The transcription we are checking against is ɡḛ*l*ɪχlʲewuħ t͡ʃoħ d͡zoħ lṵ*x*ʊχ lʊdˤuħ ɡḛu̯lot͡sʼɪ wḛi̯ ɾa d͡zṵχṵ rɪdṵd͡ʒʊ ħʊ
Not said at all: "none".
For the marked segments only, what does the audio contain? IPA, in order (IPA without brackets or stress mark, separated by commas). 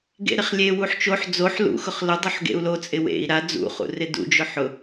ɾ, x